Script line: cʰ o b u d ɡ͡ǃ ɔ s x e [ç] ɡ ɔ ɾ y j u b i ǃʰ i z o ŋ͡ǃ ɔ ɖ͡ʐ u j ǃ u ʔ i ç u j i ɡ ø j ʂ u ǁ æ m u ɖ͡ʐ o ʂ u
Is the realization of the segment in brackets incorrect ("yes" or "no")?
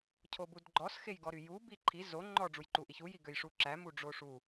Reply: yes